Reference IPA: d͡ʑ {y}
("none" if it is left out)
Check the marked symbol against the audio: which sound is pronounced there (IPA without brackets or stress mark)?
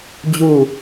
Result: u